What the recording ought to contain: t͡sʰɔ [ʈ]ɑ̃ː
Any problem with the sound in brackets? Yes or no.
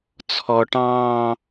no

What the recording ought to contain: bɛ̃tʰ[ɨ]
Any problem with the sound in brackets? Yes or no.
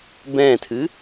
no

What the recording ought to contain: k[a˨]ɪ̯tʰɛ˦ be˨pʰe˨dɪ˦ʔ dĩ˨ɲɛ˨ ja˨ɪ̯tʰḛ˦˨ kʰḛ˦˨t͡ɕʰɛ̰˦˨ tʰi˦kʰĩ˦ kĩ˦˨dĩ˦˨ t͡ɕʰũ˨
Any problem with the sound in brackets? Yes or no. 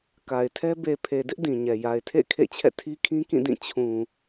no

